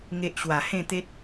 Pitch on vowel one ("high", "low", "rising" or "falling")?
low